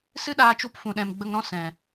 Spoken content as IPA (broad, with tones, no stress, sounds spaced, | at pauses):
s ɨ˦ ɗ aː˧ t͡ʃ u˧ p f ũ˨ ɗ ɛ̃˨ m ɡ͡b ə˧ ŋ ɾ ɔ̃˦ s ɛ̃˨